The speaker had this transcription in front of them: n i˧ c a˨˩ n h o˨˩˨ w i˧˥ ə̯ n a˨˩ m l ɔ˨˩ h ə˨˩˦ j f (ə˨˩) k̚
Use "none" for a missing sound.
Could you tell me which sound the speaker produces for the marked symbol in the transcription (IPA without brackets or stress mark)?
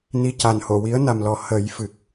ɨ˨˩